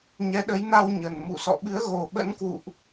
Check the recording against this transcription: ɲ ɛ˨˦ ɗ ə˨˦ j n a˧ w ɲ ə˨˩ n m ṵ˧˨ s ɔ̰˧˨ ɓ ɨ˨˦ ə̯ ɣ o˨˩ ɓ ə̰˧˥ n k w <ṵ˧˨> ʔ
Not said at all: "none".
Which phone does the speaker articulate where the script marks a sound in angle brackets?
ṵ˧˨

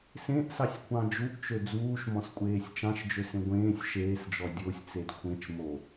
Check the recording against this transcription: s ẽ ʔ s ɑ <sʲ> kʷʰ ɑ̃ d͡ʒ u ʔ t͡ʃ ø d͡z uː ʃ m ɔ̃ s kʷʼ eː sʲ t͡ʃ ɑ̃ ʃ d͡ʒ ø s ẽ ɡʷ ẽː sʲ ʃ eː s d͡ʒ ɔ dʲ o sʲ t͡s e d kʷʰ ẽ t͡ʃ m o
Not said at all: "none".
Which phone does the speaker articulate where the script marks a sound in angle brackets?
sʲ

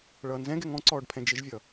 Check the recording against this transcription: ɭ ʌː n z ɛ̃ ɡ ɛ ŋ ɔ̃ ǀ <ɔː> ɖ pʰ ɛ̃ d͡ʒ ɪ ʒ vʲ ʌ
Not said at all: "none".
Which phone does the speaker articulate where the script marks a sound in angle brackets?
ɔː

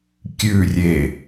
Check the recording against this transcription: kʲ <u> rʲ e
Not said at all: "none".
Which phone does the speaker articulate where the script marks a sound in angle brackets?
ʉ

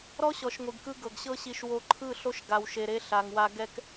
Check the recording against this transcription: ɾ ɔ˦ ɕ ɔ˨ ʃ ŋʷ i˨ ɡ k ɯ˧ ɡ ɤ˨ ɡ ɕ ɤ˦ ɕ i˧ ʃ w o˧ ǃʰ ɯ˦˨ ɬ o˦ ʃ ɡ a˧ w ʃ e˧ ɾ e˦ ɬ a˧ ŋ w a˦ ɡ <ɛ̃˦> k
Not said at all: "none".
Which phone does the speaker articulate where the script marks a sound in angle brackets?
ɛ˦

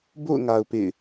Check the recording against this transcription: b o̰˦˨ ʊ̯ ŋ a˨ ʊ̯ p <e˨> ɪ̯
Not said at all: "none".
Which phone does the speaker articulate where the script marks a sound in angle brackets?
ḛ˦˨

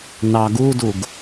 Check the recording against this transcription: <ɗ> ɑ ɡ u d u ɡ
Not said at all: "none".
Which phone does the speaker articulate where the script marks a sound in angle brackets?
n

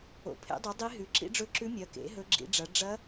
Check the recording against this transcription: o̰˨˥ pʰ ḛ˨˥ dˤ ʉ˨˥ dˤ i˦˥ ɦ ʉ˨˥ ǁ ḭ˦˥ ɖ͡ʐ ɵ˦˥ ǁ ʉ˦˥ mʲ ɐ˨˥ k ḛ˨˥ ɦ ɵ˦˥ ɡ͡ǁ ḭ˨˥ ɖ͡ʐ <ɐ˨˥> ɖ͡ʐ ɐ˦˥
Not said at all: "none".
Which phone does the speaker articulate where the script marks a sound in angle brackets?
ɐ˨˥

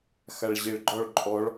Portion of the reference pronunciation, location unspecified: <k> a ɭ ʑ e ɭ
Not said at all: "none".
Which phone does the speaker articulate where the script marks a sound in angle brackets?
x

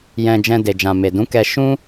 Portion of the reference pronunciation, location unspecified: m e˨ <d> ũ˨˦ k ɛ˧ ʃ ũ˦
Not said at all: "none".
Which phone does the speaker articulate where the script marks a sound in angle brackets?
d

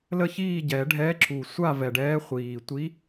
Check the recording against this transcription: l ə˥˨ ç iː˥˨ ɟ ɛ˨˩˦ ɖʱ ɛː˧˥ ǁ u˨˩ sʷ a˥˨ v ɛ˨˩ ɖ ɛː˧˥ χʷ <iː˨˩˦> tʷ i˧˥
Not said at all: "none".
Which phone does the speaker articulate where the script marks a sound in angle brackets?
iː˨˩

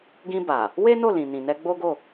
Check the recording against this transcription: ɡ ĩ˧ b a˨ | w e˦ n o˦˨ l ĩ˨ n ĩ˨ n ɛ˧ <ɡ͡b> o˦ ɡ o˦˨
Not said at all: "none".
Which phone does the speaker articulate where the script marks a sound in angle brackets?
ɡ͡b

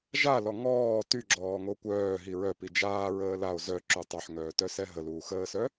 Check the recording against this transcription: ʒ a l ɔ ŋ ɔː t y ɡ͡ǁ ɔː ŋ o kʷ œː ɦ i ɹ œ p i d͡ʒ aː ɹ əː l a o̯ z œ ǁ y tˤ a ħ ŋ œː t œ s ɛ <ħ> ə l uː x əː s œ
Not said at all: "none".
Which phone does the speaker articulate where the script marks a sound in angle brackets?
ɦ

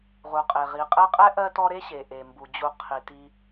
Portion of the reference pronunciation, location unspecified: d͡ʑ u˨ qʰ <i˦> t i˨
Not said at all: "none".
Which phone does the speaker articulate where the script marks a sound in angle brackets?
i˩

